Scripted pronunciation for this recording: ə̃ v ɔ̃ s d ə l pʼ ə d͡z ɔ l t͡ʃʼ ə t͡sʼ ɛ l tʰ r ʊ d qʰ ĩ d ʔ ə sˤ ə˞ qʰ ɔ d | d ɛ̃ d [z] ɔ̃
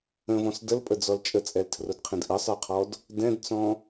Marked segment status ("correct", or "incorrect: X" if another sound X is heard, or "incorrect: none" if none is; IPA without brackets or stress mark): incorrect: t͡s